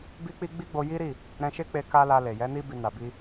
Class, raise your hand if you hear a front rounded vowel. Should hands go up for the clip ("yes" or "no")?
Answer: no